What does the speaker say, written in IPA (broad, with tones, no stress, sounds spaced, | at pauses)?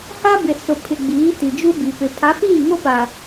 h a˦ b ɪ˨ s ʊ˨ pʰ ɪ˨ ɡ͡b iː˨˦ t i˨ d͡ʒ u˦ b i˨ p ɪ˨ pʰ a˨˦ p iː˦˨ ŋ o˦ p a˨